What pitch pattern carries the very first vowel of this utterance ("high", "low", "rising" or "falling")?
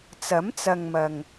rising